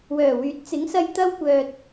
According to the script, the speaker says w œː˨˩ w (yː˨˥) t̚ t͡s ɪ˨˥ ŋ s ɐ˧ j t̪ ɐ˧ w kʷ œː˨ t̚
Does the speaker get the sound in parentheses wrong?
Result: no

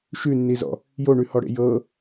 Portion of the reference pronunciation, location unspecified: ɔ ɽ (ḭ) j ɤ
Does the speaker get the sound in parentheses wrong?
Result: yes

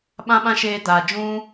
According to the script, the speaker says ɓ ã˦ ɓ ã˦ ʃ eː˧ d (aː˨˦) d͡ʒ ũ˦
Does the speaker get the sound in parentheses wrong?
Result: yes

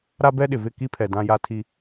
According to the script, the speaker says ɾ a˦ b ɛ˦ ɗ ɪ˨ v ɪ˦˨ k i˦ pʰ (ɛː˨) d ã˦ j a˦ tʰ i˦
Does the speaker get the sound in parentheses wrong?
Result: yes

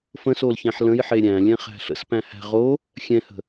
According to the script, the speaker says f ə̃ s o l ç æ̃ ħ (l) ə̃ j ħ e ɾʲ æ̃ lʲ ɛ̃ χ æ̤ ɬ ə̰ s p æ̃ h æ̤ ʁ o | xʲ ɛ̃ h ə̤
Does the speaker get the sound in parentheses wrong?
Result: no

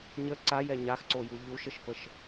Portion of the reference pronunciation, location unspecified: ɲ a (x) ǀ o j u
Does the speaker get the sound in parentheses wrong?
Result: no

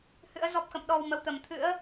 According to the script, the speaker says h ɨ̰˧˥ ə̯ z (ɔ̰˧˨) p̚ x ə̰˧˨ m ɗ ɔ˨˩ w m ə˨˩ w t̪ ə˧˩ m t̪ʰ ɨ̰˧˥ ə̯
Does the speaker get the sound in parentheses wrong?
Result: yes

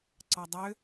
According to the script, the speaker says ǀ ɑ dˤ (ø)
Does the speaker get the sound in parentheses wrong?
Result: no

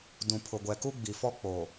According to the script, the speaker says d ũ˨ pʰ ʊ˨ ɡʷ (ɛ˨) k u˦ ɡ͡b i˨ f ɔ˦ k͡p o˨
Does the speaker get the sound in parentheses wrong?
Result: no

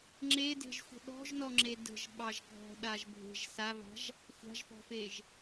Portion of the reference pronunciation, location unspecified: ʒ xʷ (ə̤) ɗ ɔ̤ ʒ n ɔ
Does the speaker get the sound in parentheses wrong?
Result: no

